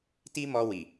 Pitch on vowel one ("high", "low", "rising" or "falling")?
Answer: high